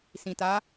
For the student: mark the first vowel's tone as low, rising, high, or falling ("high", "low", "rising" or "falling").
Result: low